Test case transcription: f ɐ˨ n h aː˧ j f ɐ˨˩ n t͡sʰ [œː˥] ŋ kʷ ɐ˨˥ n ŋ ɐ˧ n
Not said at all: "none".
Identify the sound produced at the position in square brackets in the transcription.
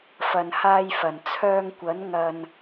œː˧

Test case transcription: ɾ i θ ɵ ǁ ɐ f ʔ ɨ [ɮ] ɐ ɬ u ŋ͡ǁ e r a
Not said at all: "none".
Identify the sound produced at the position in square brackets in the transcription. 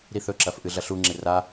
ɮ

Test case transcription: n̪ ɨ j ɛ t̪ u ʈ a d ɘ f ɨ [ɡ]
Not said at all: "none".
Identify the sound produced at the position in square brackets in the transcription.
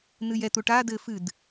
d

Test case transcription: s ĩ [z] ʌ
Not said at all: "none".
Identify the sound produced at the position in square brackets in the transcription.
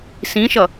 ʃ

